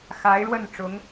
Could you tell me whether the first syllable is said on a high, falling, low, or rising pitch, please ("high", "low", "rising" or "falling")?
rising